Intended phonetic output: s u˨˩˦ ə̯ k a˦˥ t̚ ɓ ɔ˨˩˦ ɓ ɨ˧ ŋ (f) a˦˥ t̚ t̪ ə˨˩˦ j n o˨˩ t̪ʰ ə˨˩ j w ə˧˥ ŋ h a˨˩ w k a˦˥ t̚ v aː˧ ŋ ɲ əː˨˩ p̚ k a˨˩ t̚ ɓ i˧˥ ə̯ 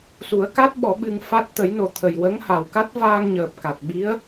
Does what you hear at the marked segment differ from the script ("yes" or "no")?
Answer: no